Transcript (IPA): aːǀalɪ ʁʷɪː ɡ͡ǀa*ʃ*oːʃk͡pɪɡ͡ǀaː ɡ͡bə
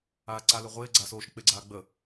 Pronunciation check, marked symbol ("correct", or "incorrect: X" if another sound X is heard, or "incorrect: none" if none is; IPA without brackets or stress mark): incorrect: s